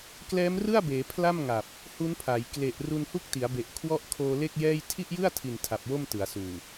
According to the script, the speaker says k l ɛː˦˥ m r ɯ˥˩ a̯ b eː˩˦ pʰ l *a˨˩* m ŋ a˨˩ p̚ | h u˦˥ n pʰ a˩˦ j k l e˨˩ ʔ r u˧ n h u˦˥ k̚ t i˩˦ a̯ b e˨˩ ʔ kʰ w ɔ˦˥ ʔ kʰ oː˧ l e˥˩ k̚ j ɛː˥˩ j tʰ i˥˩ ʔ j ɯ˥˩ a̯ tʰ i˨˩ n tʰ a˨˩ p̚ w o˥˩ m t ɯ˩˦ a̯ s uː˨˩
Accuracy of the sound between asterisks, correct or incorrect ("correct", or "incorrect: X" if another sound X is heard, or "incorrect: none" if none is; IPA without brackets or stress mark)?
incorrect: a˥˩